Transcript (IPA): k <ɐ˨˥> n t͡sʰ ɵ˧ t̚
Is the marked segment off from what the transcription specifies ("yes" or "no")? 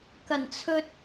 yes